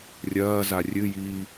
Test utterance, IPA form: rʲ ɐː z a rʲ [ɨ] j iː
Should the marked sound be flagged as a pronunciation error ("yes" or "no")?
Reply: no